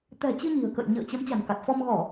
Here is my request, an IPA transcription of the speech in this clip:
t̪ ɛ̤˨˩ t͡ɕ ɨ˧ ɲ i̤˨˩ ə̯ k ə̰˧˨ j ɲ ə̰ː˧˨ t͡ɕ ə˨˦ m t͡ɕ a̤˨˩ n k a˨˩ t̚ f ɔ˧ m ɣ ɔ˧˩˨

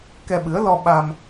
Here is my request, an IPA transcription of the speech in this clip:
k ɛ˧ ɓ ɨ˨˦ ə̯ l ɔ˧ ɓ a˧ m

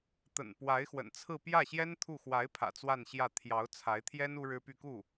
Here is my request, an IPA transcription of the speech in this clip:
t̪ ə̰˨˩ n p w a˧˥ ɪ̯ x w ə̰˨˩ n t͡sʰ ɹ̩˥˧ p j ä˥˩ ɕ j ɛ˥ n t̪ʰ u˥˩ x w a˧˥ ɪ̯ pʰ ä̰˨˩ t͡s w a˥˧ n ɕ j ä˥˩ t̪ʰ j ɑ˧˥ ʊ̯ t͡sʰ a˧˥ ɪ̯ t̪ʰ j ɛ˥ n u˥ ɻ ɻ̩˥ p y˥˧ k u˥˩

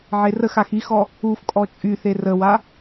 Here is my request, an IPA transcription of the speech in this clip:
ʕ e r ə x a x i x ɔ | u f kʼ ɔ t͡ʃʼ y θ e r ə w a

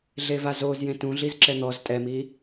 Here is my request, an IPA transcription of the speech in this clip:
ɮ e v a z o z j ẽ t ũ ɮ i z ǁ ɛ n̪ ɔ z tʼ ɛ m i

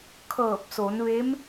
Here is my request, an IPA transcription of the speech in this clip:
kʰ ɤː˧˩ p̚ s o˩˧ n ʋ e˧˥ m

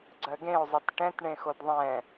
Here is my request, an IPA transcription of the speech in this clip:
ɡ͡ǀ ɜ ɡ ẽ o̯ zˤ e t ʈ ɛ̃ t ɳ ẽ x o d ðˤ ɛ̃

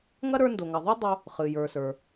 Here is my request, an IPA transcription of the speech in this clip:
ŋ ɐ˥ ɾ ə˞˧ n d o˩ ŋ ɐ˩ ðˤ ɨ˥ dˤ o˧ | χ ɨ˩ j ə˞˩ s ə˞˩

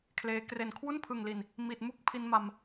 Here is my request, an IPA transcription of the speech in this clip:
kʰ l eː˦˥ k r e˨˩ n kʰ w u˥˩ n pʰ ɯ˨˩ ŋ l i˨˩ n | m i˨˩ t̚ m u˥˩ k̚ pʰ i˧ n m a˧ m

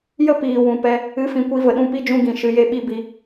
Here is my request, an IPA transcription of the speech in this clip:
j ə˦ p iː˨ w ũ˨ p ɛ˧ | ɨ˨˦ f ĩ˨ kʷ i˨˦ v ə˨ ɗ ũ˧ p i˦ d͡ʒ ũ˧ ɡ ĩ˨ ʃ ɨ˨˦ j e˦ ɓ i˦ b i˧

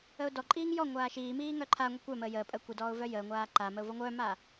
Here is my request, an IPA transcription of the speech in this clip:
ə ʊ̯ d ɔ ǃʼ iː ŋ j ɔ ŋʷ aː ʃ iː m iː ŋ œ ǃʰ a ŋʷ i kʷ œ m əː j əː pʼ əː kʷ i d ɔː ʊ̯ v œ j əː ŋʷ aː ǃ a m ə ʊ̯ v ɔ ŋʷ œː m aː

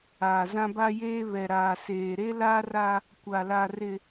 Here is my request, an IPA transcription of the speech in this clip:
a˨ z ã˦ b a˦ j eː˦ β ɛ˨ ɾ aː˨ s eː˨ ɾ e˦ l a˦ r a˦ | kʷ a˨ l a˨ r ɪ˨

